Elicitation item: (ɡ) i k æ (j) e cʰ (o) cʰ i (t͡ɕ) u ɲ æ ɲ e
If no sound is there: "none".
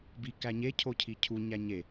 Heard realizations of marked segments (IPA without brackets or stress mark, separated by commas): b, ɲ, o, cʰ